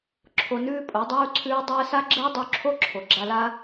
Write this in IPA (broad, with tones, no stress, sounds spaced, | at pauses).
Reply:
ǁʰ o˧ n ʉː˦ pʼ o˨˦ dˤ uː˦ ǀʰ ʉː˦ dˤ əː˦ s a˦ ɡ͡ǁ əː˦ dˤ u˧ ǁʰ o˦ ǁʰ o˨ ɡ͡ǁ a˧ l a˦